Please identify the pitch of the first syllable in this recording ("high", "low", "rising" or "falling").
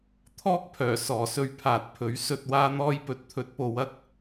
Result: high